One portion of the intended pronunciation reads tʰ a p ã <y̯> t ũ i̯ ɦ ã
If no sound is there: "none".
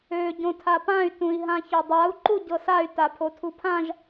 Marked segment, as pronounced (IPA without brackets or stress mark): y̯